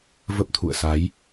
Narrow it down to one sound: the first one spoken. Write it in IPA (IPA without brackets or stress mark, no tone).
v